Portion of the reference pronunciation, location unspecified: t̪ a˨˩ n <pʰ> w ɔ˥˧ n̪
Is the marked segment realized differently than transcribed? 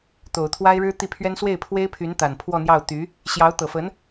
no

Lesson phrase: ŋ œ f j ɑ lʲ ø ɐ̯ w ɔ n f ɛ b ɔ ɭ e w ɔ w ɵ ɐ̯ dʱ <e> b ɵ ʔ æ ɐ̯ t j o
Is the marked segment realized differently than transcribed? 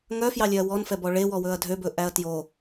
yes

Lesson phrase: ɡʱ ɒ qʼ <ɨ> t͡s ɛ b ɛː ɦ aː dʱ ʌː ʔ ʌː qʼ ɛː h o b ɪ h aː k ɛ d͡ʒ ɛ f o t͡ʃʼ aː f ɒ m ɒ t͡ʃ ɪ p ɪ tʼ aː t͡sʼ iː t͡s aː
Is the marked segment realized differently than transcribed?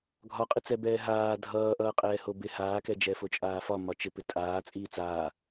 no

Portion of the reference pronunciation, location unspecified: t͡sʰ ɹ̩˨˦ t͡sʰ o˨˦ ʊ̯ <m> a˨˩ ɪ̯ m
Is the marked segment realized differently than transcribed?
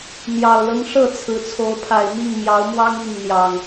yes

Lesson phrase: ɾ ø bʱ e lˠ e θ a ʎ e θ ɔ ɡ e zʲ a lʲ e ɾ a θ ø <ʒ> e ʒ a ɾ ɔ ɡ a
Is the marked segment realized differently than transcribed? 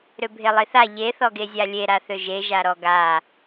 no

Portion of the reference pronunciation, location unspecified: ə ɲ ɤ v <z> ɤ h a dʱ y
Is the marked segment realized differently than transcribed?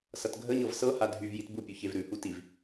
yes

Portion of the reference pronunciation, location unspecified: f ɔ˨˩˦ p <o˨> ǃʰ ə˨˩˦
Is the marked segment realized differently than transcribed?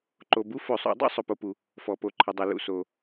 yes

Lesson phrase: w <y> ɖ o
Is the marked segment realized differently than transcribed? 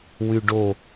no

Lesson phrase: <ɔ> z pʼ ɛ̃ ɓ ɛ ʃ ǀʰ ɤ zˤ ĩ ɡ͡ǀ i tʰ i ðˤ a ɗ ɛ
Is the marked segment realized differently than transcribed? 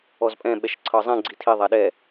no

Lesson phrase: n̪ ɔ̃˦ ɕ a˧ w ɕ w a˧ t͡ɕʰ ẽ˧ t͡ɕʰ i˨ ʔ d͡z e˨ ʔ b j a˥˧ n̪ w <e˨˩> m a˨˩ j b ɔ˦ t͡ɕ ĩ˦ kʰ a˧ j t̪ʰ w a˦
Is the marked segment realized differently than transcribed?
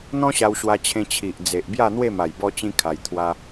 yes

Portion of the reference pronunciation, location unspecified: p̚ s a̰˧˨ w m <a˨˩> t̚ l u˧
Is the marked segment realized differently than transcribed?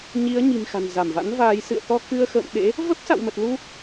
yes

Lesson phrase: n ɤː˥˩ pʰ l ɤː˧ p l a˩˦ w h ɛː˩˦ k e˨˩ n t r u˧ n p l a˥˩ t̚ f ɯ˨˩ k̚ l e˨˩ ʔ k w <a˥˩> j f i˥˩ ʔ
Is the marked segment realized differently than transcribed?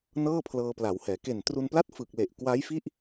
yes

